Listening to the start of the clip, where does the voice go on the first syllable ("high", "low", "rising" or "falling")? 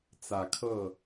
rising